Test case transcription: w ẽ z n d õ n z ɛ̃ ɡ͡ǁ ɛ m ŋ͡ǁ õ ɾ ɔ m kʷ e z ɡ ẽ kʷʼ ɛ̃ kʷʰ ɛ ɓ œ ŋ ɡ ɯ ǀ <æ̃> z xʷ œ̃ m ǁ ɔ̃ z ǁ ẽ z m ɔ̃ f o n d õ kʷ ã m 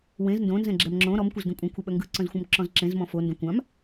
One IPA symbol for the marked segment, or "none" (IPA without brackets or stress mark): œ̃